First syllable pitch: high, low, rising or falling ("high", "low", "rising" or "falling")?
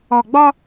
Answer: low